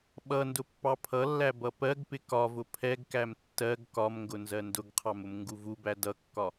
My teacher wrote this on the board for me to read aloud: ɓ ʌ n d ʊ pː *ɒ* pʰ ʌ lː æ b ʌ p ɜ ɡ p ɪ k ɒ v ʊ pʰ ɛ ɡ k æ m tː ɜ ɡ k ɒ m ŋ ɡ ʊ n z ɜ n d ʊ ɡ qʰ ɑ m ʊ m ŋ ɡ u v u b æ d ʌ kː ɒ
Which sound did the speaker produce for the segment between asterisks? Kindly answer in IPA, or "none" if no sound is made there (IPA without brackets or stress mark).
ɑ